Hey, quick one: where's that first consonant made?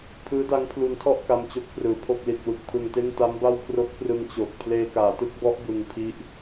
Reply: lips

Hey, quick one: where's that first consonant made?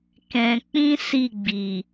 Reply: velum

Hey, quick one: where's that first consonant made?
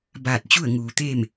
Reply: lips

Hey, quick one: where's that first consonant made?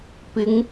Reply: lips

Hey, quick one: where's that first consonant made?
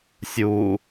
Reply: tongue tip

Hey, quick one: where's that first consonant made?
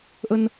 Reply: throat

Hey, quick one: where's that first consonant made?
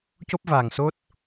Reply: palate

